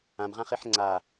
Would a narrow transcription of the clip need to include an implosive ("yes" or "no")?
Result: no